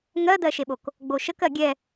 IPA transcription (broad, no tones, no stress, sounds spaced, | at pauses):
ŋ ɜ d̪ ɜ ʃ e ɓ o k | ɡ͡b o ʃ ə k ɜ ɡʲ ɛ